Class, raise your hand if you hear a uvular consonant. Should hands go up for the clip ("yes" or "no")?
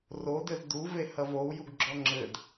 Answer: no